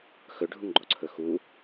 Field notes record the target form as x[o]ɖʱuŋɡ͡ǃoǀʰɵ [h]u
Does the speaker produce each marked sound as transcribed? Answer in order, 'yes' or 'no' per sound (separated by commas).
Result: no, no